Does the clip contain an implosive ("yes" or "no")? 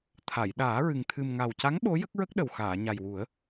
yes